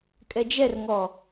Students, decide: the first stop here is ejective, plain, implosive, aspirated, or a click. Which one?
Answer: ejective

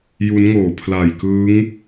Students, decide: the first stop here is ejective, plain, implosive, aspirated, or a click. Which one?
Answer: aspirated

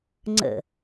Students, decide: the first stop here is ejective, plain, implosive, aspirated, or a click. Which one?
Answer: click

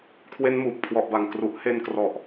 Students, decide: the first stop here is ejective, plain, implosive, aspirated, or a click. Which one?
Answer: aspirated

